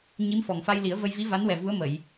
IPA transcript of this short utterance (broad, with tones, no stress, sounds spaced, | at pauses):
ɲ i˧˥ m f ɔ˨˩ ŋ f a˧ j l i˨˩˦ ə̯ v ə˧ j v i˧˥ v a˧˥ n w ɛ˨˩ v u˧˥ ə̯ m ə˨˩˨ j